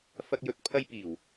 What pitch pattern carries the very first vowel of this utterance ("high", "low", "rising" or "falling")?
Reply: high